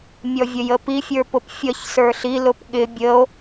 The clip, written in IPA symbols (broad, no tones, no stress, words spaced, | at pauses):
mʲɔvʲəjəpi fʲə˞pʊpfʲʌç sə˞ɬi lʊpɠɪ bʲəo̯